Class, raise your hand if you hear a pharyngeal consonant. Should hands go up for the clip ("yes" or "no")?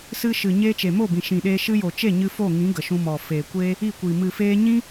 no